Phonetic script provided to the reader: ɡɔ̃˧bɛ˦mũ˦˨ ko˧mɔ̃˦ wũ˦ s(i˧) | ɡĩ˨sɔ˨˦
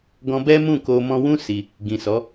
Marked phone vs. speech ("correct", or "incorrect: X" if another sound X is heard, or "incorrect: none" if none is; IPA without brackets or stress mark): correct